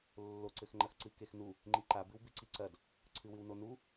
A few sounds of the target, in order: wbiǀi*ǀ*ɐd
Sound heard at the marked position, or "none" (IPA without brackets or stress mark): ǀ